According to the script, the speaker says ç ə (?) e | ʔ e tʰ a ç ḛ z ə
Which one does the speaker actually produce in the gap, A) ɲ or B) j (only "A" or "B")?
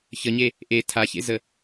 A